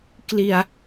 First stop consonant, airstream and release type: plain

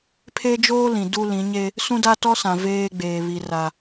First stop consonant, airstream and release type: aspirated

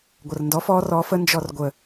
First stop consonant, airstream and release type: plain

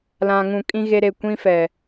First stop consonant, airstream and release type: ejective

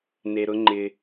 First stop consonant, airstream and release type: click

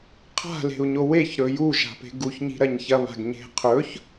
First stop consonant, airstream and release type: aspirated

